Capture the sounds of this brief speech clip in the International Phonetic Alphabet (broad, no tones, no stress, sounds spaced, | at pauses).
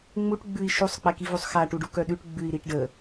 ŋ͡m u ʈ ɡ͡b ʉ i̯ ʃ u sˤ k͡p ɛ k i v u sˤ x a ʈ u ɖ u k œ ɗ ʉ ʈ ɡ͡b ʉ i̯ ɾ i ʈ ɖ ə